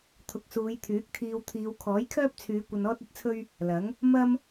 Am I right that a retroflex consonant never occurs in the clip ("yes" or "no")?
yes